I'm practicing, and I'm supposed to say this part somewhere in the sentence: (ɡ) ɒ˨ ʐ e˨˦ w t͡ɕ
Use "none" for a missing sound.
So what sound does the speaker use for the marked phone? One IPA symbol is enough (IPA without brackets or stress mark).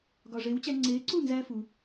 ɡ